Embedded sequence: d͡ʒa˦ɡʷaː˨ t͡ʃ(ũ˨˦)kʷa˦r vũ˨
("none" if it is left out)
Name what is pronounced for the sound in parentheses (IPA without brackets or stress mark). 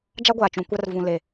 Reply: ũ˨˦